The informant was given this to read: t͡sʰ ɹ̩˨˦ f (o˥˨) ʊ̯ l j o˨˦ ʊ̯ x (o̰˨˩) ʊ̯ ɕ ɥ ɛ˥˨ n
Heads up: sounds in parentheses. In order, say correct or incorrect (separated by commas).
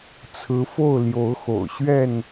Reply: correct, correct